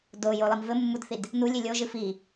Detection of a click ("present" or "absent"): absent